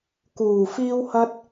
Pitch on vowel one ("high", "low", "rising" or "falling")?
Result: low